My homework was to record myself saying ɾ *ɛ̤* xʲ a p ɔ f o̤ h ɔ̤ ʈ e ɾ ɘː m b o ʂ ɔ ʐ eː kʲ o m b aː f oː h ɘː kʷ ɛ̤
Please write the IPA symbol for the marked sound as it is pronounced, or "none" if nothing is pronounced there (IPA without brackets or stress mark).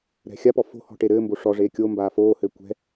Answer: ɛ̤